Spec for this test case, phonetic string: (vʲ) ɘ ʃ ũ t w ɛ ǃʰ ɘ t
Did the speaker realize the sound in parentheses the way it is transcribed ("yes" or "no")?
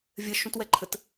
yes